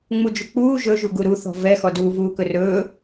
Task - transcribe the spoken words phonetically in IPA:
ŋ͡m u d͡ʒ u k͡p uː ʒ ɵ ʒ u ɡ u ɾ u θ ɔ̤ v ɛ x ɔ d uː v uː k ɵ r ɵː

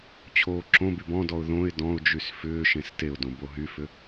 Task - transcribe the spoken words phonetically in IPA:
t͡ɕʰ oː ǁ õ b y b ɔ̃ d ɔ ʊ̯ ð õ ɪ̯ d ɔ̃ ʊ̯ d͡ʒ y s f ʏː ʃ ẽ s t e ʊ̯ d õ b o ɦ y f ʏ

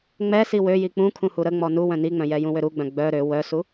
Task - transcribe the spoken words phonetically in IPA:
ŋ͡m ɛ s i w ø j i k͡p ũ kʰ ũ h u ɾ ə ŋ͡m ɔ n u w œ̃ n i ŋ͡m œ̃ j ɛ j ũ w ø ɾ u ɡ͡b œ̃ ɡ͡b œ ɾ ø w œ s u

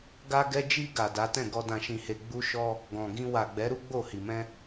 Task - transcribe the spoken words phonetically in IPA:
ɡ a˧ ɡ ɛ˧ d͡ʒ i˧ ɡ a˨ d a˨˦ t ɛ̃˦˨ ɡ ɔ˧ d ã˧ ʃ ĩ˧ h e˧ ɡ͡b u˦ ʃ ɔ˦ | ɡ ɔ̃˨ ɡ ĩ˧ w a˨ ɡ͡b ɛ˨˦ ɾ u˦ ɡ͡b o˦˨ h i˨ m ɛ̃˧

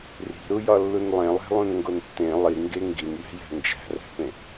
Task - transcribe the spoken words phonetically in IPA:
r i̤ ɾ u j ɒ lː u n lˠ ẽ lˠ æ̤ lˠ ũ n ŋ ɡ o n tː ẽ lˠ i ŋ ɡ e ŋ ɡ i n j æ̤ j æ̤ n d͡ʒ æ̤ r æ̤ p ẽ

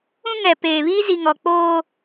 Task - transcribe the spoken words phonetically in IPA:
ũ˦ ŋ ɛ˨ p eː˨ β i˦ z i˨ ŋ ɔ˨ k͡p oː˦

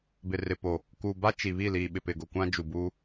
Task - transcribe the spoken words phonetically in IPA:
b ɪ˨ r ɪ˨ p o˨ | k uː˨ b a˦ t͡ʃ i˨ β iː˦˨ l iː˨ ɓ ɪ˨ p ɪ˨ ɡ ʊ˨ kʷ ã˦ d͡ʒ u˨ b uː˦

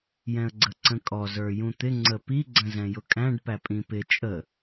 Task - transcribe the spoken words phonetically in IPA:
j ɛ̃ ə̯ ɡ͡ǀ ə ǀ ə̃ kʼ ɔ z ə˞ j ũ t̪ ɪ ŋ͡ǀ ə p i ɡ͡ǀ ə̃ z ɛ̃ j ʊ kʼ æ̃ ɖ p æ pʼ ĩ p ɪ t͡ʃʼ ə

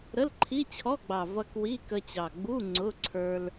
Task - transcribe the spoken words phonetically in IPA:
ɾ ə˧˥˧ l ǃʰ i˧˥˧ t͡ɕʰ ɔ˧˥˧ ɡ͡b ɑ˨˩ v ʌ˧ k w i˧˥˧ k ə˧ t͡ɕ ɑ˨˩ ɡ͡b u˧˥˧ ŋ͡ǀ ʊ˧˥˧ ǀʰ ə˞˧ l

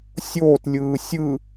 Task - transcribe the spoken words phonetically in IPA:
sʲ oː t lʲ ɯː sʲ ɯ

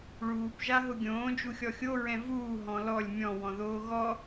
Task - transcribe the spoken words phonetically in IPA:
ɭ uː p ʒ a ɦ ʊ ɡʲ õː d͡ʒ u xʲ ɔ xʲ o ɹ ɛ̃ v uː ɦ ɔ̃ l ɔ lʲ mʲ ɔ̃ w ɔ̃ ð oː ɣ ɔ

